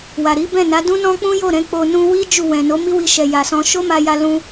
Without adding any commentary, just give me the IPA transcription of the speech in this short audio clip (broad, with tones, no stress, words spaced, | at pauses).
wa˨ɾi˨˦ bɛ̃˦˨na˨˦dũ˦nɔ̃˦ k͡pũ˦jo˦˨ɾɛ̃˧ k͡po˧ nũ˧wi˦ d͡ʒu˦˨wɛ̃˨ no˨˦mi˦wi˧ʃɛ˨ ja˨sɔ̃˧ ʃo˦ ma˧ja˧ lũ˦